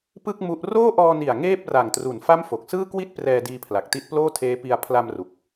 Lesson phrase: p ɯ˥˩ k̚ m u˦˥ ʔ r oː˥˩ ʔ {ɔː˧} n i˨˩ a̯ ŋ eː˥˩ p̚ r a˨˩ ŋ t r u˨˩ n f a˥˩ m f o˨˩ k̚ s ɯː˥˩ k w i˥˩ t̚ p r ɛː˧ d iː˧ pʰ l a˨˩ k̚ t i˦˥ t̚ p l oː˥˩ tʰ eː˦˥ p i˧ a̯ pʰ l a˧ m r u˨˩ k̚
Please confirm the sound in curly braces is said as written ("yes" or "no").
yes